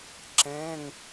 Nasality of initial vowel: nasal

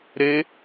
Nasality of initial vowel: oral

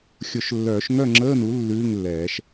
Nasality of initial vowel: oral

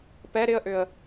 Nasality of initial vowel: oral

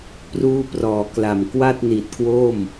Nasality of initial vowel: oral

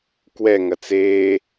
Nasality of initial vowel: oral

